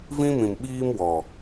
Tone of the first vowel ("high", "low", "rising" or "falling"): high